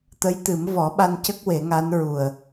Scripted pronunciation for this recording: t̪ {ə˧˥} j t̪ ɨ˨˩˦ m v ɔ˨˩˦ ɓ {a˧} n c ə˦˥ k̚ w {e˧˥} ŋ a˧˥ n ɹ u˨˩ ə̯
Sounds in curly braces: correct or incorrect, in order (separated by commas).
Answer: correct, correct, incorrect